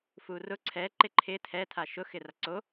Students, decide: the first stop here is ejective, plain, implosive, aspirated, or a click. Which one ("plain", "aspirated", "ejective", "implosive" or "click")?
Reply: click